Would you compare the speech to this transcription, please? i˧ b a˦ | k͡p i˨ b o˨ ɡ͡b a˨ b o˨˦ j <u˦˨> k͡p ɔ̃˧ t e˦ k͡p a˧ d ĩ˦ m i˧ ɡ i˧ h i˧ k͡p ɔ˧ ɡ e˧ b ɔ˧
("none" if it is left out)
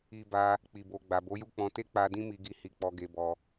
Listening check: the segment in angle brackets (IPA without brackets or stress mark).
u˦˨